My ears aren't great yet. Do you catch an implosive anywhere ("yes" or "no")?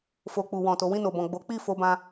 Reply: no